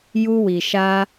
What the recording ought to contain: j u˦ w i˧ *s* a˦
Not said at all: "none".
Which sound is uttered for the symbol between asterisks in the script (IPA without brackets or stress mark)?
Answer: ʃ